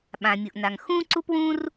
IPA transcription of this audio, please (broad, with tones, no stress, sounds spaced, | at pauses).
ɓ ã˩ mʲ u˩ ʔ n a˩ ŋ x ũ˥ ǀ u˥ p w ũ˥ r